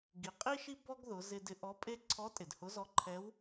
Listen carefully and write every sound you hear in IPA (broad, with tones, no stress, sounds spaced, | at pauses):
ɡ i˩ qʼ i˥ ʃ i˥ b ɔ˥ ɡ ð ʊ˩˧ z ɪ˧ d ɪ˧ ʔ ɔ˧˥ pʼ e˥ ǀʰ ɔ˧˥ tʼ ɪ˩ d h ʊ˧˥ z ɔ˧˥ ǃʰ ɛ˧˥ w